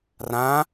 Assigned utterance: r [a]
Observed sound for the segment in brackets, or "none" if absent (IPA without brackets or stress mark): ã